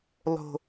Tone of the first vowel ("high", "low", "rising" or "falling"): low